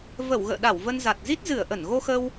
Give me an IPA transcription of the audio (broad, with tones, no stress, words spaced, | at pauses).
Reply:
və˧˩wɣə̰ː˧˨ɗa˧˩w və˧nza˨˩t̚ zi˦˥t̚zɨ˧˩ə̯ ʔə˧˩n ɣo˧xə˧w